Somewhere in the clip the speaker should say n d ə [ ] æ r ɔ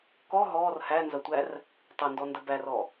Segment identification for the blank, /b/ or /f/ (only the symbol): b